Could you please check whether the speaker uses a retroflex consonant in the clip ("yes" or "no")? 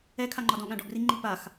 yes